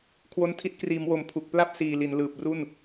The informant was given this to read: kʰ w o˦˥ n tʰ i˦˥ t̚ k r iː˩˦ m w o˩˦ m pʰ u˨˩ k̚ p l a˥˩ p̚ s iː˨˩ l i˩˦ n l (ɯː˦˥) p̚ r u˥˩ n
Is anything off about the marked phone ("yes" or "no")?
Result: yes